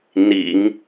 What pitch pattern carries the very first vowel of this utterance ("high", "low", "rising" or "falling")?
low